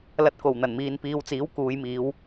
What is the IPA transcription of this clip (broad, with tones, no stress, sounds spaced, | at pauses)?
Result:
l ɐ˧ t̚ k o˨˩ w n̪ ɐ˨˩ n m iː˨ n p iː˨ w t͡s iː˨˥ w k uː˨˧ j m iː˨˧ w